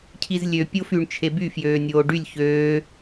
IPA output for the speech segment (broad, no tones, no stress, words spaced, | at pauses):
cʰizlʲø pʲofyɳ t͡ʃʰeby fjøːnʲoːɖylʲ çøː